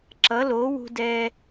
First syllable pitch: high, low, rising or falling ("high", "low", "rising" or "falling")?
rising